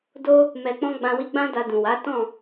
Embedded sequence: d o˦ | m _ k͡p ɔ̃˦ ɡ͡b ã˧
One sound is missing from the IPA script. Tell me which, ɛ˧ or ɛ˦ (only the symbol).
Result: ɛ˧